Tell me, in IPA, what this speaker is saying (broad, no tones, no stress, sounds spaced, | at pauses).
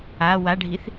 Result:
a w a ɖʱ i θ